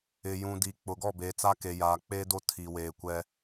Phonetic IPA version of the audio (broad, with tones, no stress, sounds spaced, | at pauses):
ɪ˨ j ũ˨ d iː˨ k͡p ʊ˨ ɡ ɔ˦˨ b eː˨ t͡s a˦ k e˨ j aː˨ k͡p eː˦ d o˦ tʰ i˨ w eː˨ kʷ ɛ˦